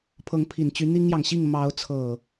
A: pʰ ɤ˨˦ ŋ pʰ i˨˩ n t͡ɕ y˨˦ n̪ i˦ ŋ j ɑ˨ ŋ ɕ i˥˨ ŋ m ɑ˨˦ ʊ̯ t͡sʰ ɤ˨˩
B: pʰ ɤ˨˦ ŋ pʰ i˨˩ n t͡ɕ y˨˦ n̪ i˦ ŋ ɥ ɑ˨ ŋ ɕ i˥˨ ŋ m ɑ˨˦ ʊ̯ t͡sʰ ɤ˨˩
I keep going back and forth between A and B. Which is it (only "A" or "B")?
A